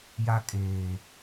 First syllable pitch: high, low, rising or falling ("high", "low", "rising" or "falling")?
high